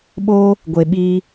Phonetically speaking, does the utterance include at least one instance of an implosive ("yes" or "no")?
yes